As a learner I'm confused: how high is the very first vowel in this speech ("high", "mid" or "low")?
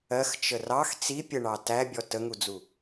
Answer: mid